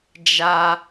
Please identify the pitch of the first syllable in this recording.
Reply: high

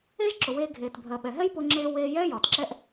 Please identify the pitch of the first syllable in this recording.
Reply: high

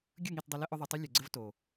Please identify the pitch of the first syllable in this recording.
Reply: falling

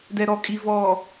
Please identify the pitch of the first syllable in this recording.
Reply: low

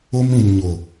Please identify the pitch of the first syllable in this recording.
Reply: high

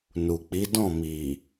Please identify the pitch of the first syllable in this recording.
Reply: low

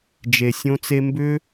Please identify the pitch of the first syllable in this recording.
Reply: low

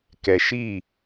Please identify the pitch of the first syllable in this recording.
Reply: low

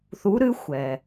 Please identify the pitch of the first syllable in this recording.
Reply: rising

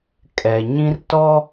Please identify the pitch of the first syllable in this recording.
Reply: low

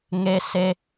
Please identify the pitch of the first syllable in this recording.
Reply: high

